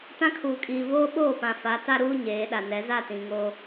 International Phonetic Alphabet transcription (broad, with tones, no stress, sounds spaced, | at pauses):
t ã˦ kʰ uː˨ kʼ iː˨ v oː˦ ɓ oː˦˨ p ã˨ f a˨˦ t a˦ ɾ uː˦ ɲ eː˨˦ ɗ a˨ n ɛ˨˦ z a˦˨ t ĩ˨ ŋ oː˦